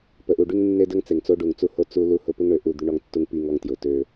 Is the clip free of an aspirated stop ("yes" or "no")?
yes